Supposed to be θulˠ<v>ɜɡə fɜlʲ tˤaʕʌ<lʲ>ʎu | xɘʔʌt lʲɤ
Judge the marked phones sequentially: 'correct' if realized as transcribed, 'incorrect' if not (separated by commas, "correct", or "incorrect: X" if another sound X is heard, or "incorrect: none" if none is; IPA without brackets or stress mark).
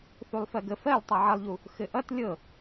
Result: incorrect: f, incorrect: lˠ